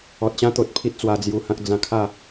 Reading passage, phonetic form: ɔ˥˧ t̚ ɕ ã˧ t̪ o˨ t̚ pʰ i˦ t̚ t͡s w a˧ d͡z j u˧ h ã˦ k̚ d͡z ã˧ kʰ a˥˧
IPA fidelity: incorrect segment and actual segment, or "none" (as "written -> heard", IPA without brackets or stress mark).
ɔ˥˧ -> ɔ˨